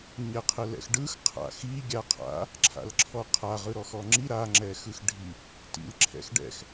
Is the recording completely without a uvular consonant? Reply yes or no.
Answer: no